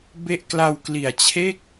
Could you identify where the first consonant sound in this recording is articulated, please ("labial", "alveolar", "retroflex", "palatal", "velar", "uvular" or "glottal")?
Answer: labial